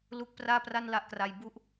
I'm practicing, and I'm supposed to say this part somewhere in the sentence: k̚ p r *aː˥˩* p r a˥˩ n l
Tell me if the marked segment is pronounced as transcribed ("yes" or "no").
yes